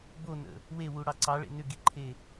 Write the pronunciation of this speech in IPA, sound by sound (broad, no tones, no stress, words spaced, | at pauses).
bonə̰ | wewuɽɑ ǀɑɭḛ nʏɡiǃʰe